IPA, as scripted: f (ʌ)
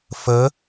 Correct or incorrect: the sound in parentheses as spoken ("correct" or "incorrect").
incorrect